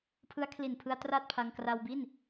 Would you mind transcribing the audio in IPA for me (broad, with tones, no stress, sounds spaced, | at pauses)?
pʰ ɯ˦˥ a̯ kʰ l i˨˩ n pʰ ɯ˧ a̯ t r a˥˩ t̚ pʰ a˧ ŋ k r a˧ w b i˥˩ n